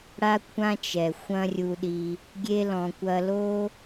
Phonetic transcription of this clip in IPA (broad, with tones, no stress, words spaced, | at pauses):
ɽa˦kʷʰã˦t͡ʃɛ˨ xʷɐ̃˦rʲu˧ɗi˧ | ɡʲe˦lɔ̃˧ kʷɐ˧lo˦